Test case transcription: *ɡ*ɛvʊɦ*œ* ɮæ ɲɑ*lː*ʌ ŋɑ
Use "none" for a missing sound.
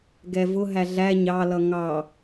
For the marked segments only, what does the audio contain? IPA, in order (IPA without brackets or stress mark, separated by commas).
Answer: ɡ, æ, l